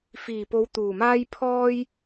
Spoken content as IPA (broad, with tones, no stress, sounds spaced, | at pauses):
f iː˨˩ p o˨˧ w t̪ uː˨˩ m aː˥ j pʰ ɔː˥ j